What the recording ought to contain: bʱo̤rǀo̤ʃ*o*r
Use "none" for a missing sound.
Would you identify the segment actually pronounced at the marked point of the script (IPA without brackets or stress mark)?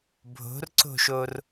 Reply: o